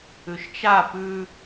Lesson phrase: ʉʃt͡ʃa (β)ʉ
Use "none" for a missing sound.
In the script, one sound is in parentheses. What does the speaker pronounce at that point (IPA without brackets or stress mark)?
p